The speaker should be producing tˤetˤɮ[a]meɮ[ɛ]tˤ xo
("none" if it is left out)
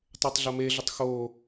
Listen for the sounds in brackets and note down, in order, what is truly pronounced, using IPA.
ɐ, ʏ

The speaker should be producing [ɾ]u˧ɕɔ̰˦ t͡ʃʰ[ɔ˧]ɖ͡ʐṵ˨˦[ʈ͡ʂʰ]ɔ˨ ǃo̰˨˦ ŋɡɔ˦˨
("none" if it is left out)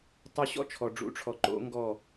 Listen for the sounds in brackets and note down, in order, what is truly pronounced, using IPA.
tˤ, ɔ˨, ʈ͡ʂʰ

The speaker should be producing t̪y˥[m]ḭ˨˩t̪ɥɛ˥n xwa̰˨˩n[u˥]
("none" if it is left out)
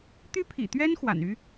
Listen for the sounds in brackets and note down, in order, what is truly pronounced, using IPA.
pʰ, y˥

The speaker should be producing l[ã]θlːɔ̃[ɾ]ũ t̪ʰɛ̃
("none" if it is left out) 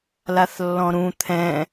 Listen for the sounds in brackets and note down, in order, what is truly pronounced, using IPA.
a, ɾ

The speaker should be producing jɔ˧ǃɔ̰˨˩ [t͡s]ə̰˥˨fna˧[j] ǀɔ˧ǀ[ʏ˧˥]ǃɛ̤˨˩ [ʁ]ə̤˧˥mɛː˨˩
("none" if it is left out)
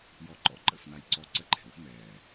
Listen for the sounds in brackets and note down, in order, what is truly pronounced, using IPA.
ǃ, j, ə˧˥, w

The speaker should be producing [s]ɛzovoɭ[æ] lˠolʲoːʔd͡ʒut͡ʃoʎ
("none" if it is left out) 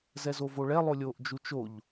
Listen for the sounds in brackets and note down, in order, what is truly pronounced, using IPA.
z, ɛ

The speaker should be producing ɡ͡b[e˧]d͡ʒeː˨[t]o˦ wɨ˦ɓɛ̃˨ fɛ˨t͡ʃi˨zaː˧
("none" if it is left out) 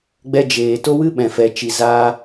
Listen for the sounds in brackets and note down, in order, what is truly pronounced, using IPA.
ɛ˧, t

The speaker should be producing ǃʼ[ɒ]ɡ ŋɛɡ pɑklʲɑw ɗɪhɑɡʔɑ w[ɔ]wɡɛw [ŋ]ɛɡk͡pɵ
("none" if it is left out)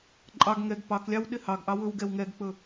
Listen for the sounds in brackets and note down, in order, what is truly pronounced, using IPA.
ɑ, ɵ, ŋ

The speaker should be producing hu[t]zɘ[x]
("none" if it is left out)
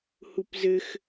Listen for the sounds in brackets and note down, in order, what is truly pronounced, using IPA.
p, x

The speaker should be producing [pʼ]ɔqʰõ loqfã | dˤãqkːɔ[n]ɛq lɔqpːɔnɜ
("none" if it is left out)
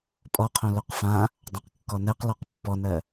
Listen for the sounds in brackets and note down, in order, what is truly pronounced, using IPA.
pʼ, n

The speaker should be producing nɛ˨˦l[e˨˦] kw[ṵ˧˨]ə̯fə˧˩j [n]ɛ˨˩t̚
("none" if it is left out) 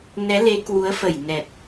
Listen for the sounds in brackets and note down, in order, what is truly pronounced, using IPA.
e˨˦, u˨˦, n

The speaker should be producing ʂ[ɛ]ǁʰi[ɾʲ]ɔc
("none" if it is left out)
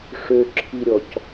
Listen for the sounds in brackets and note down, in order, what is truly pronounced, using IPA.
ø, ɾʲ

